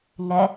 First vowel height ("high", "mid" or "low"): mid